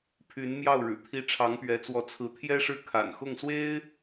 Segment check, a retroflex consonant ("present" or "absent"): present